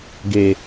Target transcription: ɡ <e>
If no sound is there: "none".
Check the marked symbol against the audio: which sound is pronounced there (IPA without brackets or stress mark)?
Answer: e